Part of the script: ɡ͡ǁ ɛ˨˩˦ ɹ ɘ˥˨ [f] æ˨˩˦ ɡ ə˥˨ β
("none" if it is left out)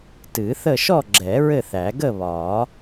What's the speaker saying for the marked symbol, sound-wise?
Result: θ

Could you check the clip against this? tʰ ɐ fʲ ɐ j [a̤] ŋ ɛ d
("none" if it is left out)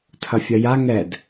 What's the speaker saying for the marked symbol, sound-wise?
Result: a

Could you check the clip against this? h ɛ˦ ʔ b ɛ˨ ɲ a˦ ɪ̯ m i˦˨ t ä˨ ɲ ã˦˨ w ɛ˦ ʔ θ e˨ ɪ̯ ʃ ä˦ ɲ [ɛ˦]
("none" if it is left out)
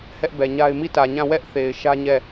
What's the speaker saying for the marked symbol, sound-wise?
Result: ɛ˦˨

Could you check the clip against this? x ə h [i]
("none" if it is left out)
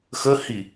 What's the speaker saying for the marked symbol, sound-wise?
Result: i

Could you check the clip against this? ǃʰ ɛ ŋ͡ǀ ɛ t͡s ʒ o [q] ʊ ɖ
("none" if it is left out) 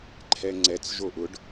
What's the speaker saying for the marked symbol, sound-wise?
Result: ʔ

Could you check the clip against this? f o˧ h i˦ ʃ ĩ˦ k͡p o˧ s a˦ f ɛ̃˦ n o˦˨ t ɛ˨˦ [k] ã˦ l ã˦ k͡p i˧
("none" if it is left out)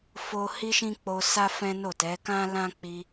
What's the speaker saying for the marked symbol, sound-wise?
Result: k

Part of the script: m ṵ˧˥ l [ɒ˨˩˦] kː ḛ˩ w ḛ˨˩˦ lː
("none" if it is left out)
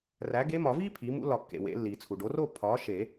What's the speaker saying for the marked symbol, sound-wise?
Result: ɒ˨˩˦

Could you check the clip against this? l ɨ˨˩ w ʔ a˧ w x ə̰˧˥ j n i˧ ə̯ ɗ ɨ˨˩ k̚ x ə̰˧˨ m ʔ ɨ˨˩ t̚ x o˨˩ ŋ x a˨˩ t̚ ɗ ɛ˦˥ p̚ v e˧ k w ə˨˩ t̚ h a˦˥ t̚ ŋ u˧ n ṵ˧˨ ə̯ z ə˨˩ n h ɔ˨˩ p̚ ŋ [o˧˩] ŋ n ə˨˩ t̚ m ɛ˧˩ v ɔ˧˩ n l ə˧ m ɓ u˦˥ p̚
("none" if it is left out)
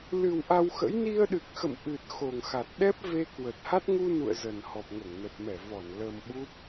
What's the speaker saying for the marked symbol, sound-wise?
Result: o˧˩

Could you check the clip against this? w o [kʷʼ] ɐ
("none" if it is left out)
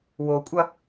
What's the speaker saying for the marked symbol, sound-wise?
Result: kʷʼ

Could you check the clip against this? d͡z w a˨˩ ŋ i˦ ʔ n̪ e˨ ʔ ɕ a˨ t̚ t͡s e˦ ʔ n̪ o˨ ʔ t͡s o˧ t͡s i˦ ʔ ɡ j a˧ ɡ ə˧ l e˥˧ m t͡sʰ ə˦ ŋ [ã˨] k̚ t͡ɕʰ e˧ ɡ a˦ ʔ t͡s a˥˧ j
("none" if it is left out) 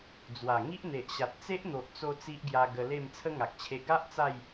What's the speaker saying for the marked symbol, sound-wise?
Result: a˨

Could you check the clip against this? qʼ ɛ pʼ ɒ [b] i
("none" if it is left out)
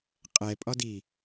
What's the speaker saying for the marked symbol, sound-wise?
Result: d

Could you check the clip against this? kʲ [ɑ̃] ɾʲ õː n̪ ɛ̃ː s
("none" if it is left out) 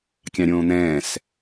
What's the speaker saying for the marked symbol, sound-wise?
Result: ɑ̃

